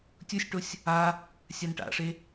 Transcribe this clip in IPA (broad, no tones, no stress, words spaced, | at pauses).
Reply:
tʲusʲʈosʲ | a | sʲanʈa̰ʂe